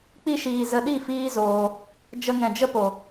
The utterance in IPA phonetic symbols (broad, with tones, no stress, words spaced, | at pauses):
k͡pi˧ʃiː˨ zə˧ɗi˦˨fiː˦zoː˧ | d͡ʒə˧ŋɛ̃˨d͡ʒə˦po˨